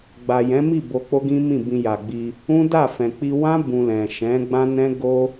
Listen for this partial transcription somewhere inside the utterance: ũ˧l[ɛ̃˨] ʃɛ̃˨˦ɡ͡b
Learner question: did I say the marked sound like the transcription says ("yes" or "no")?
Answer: yes